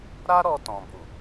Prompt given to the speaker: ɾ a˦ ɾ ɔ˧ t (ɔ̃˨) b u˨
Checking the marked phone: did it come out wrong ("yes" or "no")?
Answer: no